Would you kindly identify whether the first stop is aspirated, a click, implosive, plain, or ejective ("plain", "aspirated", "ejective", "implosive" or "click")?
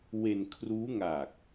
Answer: aspirated